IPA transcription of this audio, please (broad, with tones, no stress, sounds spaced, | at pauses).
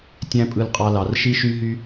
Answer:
tʲ æ̃˦ pʼ ɯ˧ l qʼ ɑ˧ l ɑ˨ r ʃ i˧ ʃ y˧ ɦ y˧